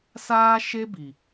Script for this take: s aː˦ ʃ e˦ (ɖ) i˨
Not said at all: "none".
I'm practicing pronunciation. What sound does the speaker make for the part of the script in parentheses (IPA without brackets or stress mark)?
b